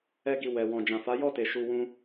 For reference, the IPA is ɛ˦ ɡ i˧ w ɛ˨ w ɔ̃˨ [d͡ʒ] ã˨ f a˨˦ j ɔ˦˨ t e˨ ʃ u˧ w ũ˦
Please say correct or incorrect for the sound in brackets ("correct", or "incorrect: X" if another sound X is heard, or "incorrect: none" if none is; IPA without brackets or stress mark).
correct